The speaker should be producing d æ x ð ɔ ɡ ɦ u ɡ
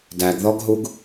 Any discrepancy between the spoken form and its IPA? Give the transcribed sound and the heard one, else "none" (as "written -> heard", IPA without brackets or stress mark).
x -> ɡ